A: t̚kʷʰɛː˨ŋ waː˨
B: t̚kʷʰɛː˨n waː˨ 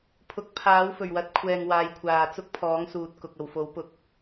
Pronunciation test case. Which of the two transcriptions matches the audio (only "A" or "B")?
A